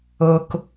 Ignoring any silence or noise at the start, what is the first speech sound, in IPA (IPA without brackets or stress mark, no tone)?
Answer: o